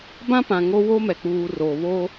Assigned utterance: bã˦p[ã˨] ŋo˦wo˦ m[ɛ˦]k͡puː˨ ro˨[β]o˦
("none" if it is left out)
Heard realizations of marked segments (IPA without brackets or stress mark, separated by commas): ã˨, ɛ˨, β